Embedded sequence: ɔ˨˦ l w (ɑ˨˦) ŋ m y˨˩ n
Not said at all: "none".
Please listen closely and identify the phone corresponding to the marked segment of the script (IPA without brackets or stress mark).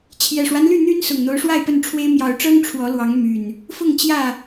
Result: ɑ˨˦